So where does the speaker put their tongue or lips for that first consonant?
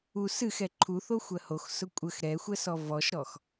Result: tongue tip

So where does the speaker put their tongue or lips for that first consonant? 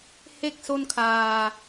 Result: throat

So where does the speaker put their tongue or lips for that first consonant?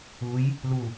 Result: palate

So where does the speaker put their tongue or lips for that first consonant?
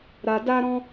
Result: tongue tip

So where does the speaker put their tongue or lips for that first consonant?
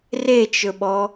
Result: tongue tip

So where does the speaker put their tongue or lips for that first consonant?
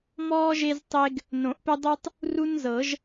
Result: lips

